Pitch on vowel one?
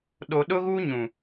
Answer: low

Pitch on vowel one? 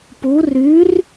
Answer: rising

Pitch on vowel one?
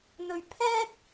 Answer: low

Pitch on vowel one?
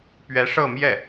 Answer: rising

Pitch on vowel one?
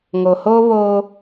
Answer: low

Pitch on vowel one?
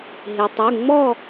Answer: low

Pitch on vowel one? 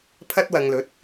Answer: high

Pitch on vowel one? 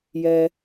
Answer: high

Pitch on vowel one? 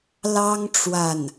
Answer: high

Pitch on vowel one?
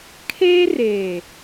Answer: high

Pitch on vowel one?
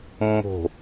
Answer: low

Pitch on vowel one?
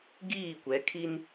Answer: falling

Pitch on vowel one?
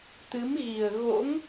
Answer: rising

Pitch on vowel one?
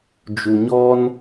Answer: low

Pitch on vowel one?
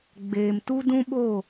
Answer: low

